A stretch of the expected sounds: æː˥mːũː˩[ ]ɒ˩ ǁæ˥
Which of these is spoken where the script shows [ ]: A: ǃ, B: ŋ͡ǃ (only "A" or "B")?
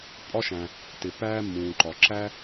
A